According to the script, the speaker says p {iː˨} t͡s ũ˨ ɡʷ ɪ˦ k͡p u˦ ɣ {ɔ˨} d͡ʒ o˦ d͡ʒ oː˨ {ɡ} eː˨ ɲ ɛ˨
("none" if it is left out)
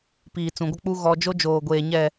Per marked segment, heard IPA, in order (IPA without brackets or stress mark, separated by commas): iː˨, ɔ˦, ɡʷ